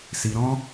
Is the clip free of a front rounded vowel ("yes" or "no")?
yes